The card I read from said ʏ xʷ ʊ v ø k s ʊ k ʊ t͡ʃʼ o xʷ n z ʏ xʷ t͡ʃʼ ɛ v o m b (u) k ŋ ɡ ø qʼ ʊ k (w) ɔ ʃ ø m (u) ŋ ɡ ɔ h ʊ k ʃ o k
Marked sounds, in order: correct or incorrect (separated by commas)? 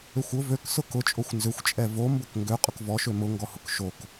incorrect, incorrect, incorrect